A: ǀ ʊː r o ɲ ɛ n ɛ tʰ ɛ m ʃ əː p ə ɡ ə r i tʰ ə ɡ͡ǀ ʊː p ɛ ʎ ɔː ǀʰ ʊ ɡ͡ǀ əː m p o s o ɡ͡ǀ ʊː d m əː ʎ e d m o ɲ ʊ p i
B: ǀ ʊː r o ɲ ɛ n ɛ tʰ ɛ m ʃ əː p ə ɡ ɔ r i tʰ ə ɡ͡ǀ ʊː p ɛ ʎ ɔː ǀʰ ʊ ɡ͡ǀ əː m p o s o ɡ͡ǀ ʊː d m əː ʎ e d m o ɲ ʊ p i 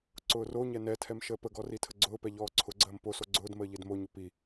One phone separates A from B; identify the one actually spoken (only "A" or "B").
B